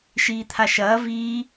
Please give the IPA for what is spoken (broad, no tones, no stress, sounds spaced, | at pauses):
ʃ iː t̪ʰ a ʃ ɐː v iː